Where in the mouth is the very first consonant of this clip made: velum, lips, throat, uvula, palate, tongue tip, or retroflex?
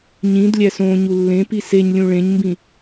palate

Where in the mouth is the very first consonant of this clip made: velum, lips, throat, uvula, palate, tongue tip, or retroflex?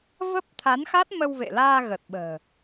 lips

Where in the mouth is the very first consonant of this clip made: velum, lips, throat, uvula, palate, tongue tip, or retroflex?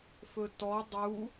lips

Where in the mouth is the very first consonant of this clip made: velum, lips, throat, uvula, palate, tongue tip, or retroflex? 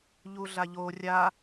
palate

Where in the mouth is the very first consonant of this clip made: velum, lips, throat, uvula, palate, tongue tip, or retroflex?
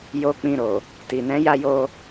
palate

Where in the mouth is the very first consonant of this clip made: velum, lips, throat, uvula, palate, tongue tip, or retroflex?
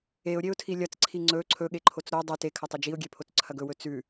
tongue tip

